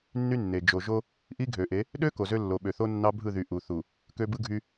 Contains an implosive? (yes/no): yes